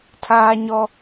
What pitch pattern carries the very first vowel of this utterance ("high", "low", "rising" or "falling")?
high